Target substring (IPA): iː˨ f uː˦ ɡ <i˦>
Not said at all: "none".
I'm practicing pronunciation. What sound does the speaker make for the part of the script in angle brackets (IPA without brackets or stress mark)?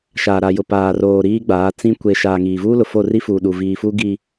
i˨